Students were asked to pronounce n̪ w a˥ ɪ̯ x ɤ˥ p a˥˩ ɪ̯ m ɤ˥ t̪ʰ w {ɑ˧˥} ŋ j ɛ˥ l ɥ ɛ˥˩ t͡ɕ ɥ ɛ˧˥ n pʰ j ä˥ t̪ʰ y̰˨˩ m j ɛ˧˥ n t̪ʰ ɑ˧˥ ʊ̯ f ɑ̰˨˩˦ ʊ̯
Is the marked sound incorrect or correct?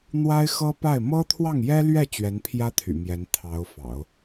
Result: incorrect